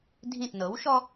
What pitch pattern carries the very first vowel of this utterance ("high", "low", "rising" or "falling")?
falling